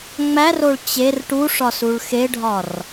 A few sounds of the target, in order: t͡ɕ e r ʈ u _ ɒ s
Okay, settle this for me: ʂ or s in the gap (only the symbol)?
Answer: ʂ